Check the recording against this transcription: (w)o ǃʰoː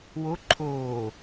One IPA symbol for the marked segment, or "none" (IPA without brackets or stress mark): w